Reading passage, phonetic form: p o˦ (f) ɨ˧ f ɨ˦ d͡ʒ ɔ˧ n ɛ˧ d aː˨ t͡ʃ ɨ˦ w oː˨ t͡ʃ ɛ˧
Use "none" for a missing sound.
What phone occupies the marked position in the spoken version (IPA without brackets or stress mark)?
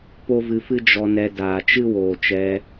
v